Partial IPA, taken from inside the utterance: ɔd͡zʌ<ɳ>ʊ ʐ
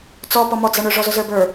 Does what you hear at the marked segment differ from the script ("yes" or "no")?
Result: no